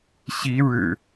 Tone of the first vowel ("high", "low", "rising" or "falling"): rising